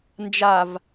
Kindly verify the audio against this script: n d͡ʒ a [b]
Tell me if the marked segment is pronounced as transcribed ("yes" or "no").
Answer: no